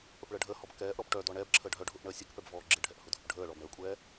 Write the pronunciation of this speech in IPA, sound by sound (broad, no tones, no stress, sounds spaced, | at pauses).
p ə p ɭ əː ɖʱ əː h ɔ b k ɛː ʔ ɾ ɔ b ʈ œ d ɔ ɳ ɛ b ǁʰ ə ɖʱ œ ɖʱ ʊ ʔ ɳ əː sʲ ɯ k p ɛ b v ɔː ɡ͡ǁ ɪ ɖʱ ɛ ʔ h ʊ dʱ ʊ p ɖʱ əː ɭ ɔ b ɳ əː kʷʼ ɛː